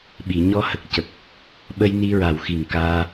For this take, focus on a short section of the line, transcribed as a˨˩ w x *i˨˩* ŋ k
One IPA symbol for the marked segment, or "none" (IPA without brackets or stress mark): i˨˩